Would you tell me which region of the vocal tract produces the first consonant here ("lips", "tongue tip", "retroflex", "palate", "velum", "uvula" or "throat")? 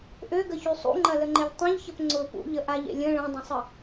throat